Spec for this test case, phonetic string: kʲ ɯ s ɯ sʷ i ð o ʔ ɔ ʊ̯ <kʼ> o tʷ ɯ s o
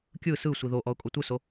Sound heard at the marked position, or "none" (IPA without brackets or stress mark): kʼ